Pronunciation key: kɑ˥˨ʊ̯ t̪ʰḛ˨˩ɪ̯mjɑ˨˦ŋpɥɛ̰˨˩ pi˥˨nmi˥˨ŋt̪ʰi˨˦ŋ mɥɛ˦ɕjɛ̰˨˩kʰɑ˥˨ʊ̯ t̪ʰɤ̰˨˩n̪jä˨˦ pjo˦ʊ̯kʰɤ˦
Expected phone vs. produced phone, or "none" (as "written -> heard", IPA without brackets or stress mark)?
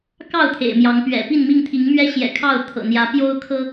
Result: none